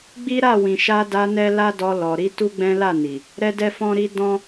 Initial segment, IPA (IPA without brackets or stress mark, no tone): ɡ͡b